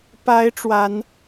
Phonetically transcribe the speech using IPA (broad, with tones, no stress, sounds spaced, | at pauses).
p a˧˥ ɪ̯ ʈ͡ʂ w a˧˥ n